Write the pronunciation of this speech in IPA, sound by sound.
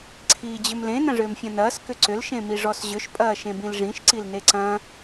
ǀʰ iː d͡ʑ ʏ m l ẽ n ɐ̃ ʐ ʏː m fʲ ɐ̃ n ɐː s k ʏ ǀ ʏ l ʃ ẽ m i ʐ ɔ s ʑ ʏ ʃ pʼ ɐː ʃ ẽ b ĩ l ʐ ĩ ʃ ǀ i l n e ǀ ɐ̃

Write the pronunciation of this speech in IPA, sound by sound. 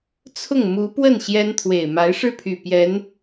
t͡sʰ ʊ˥˩ ŋ m u˧˥ p w ə˥˩ n ɕ j ɛ˥ n t̪ʰ w e˨˩ ɪ̯ m a˧˥ ɪ̯ ʂ ɻ̩˥˩ pʰ y˨˩ p j ɛ˧˥ n

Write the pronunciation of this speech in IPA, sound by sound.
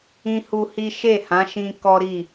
ĩ˦ h u˦ h i˦ ʃ e˦˨ h ã˨˦ ʃ ĩ˧ k ɔ˦ ɾ i˦˨

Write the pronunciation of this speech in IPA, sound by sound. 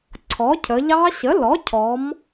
ǀʰ ɔ˩˥ cʰ ə˩˧ ʎ ɑ˦˥ ɕ ə˩˥ l ɔ˩˥ cʰ ɔ˩˧ m

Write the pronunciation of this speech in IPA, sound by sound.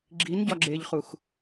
ɡ͡ǁ i n ɟ ɒ ɡ͡ǁ e ʎ χ u x

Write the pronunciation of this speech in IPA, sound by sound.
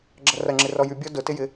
ɡ͡ǁ ɐ r ɐ ŋ͡ǁ ɪ r ɔ j y bʲ ɔ d ʊ t ɪ j ɪ

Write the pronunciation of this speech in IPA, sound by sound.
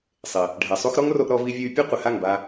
sˤ ɪ˨ | ɖʱ ɛ˨ sˤ u˦ x ɾ ɔ˦ ŋ r o˧ ʔ ɾ ɔ˧ v i˧ vʲ u˧ y̯ pʲ ʊ˦ qʷ ɪ˨ h a˦˨ ŋ b a˧

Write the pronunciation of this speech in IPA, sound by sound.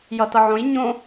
j ʌ t ʌ ʕ õ j ɲ õ

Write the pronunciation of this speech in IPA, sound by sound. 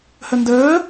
h ə n d əː

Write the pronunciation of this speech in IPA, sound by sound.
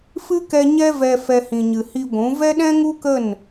f ɨ˦ k ɛ˧ ɲ ɛ˦ v ɛ˧ f ɛ˦ h ĩ˧ ɲ ɨ˧ h i˧ ɡʷ ũ˨˦ v ɛ˦ ɗ ɛ̃˦ ŋ u˦ k ə˦˨ n

